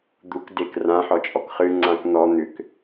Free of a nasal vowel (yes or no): no